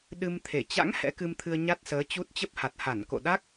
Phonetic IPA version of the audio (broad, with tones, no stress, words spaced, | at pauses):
ɗɨ˧mt̪ʰe˧˩ t͡ɕa̰˧˥ŋ hɛ̰˧˥kɨ˧mt̪ʰɨ˧ə̯ ɲa˦˥t̚səː˨˦ t͡ɕu˦˥t̚ t͡ɕə˦˥p̚ha˨˩t̚ha˧˩n ko̰˧˨ɗa˦˥k̚